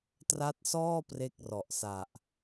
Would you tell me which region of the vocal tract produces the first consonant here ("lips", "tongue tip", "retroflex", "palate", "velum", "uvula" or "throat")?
tongue tip